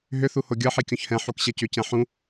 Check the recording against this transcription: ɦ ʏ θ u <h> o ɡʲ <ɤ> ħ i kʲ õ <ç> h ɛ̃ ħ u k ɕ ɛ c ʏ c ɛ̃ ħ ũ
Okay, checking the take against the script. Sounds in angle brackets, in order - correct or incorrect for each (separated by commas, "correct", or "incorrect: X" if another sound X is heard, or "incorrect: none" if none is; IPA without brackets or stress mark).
correct, correct, correct